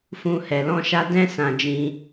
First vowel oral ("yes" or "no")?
no